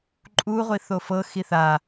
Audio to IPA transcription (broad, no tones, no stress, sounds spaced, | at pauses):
ǃʼ u ʁʷ i θ o f ɤ x i θ a